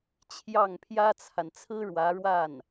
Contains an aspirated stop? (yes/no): yes